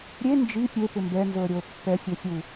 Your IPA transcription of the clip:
ɾʲ e n d͡ʒ i pʲ e p ɪ m b ɛ n z o ə̯ ɾʲ o ə̯ pː ɛ fʲ o fʲ u

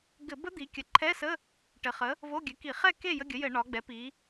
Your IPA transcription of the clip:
ɡ ɘ˧˩˧ b ə˦˥ d̪ i˩˧ kʲ ə˩˧ ǃʰ ɛ˧˥˧ s ə˧˥˧ | ʈ ɘ˩˧ χ ə˩˥ | v o˧˥˧ ɡʲ ɘ˩˥ k i˧˩˧ χ ɛ˥˨ k e˥˨ j ə˧˥˧ ɡʲ ə˩˥ j ɘ˧˩˧ ɳ ɒ˩˧ ɡ͡b ɛ˩˥ p i˩˧

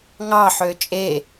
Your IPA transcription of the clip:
ŋ ɑ ħ ø t͡ʃʼ e

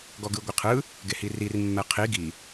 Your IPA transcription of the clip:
ɡ ɔ ɡ ɯ ɡʷ i qʰ ɯ | ɡ e h i r i r mː ɛ qʰ i ɡ i

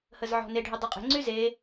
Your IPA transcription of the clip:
h ə z ʕ ɔ̤ n e ɖʱ y dˤ e qʼ e̤ ŋ͡ǀ y z e

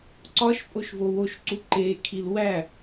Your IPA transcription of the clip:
ǀ ɒ ʃ pʼ o ʃ v o w o ʃ ǀ u ǃ e kʰ i l w æ

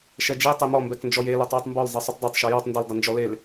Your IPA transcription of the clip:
ʃ ɛ d͡ʒ e tˤ e m ɔ m b ɛ k n d͡ʒ ɔ j e l ɔ tˤ w u tˤ m b ɔ l zˤ e sˤ u tˤ dˤ ɛ tˤ ʃ ɔ j ɔ tˤ n d ɘ l dˤ ɘ n d͡ʒ ɔ l e l

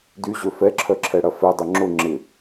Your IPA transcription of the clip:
d y ʑ ø f ɛ ǁʰ œ ǁʰ ɛ ɽ ɐ f ɛ dˤ ʊ ŋ͡ǁ ʊ ŋ͡ǁ ɪ

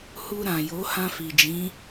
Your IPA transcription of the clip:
h u˧ ɾ ã˨ j o˨˦ h ã˧ f i˨ d͡ʒ ĩ˨˦

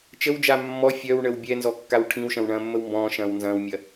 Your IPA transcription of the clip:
t͡ʃ ə w d͡ʒ a mː ɔ fʲ œ w ɳ ə w bʲ ɛ n z ɔ kː a w ʈʰ ĩ w ʃ ɐ̃ w ɳ ɐ̃ː mː ə w m b ɔ̃ː ʃ ɐ̃ː w n z ɐ̃ː w mʲ ɐ

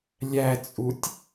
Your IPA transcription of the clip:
lʲ æ t͡sʼ u tʲ

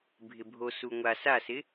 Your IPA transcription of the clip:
bʱ ɪ bʱ o s u ŋʷ a s a s ɪ

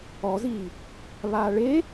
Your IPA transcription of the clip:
ɔ z iː | β aː ɭ e

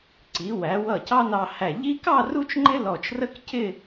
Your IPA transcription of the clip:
ǀ i˩˧ w æ˩˧ w ʌ˧˩ c ɑ˥ n ɑ˧ h æ˧˩ ʎ i˥ k ɑ˥˧ r u˥ t͡ʃ ŋ͡ǃ ɪ˥ l ɔ˧˩ t͡ʃ r ə˥ k c ɪ˥˧

